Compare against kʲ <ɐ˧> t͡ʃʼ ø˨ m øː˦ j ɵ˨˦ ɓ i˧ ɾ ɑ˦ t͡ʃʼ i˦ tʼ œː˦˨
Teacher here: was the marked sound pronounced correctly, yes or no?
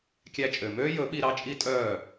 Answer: no